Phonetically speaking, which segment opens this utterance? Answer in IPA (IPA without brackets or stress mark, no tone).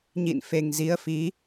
ɲ